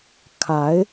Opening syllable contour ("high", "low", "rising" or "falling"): rising